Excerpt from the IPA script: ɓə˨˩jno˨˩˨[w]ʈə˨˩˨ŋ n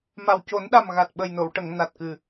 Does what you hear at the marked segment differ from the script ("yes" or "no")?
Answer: no